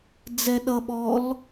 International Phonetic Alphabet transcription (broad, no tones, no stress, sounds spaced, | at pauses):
d͡z ɛ ɗ ʌ ɓ ɔ l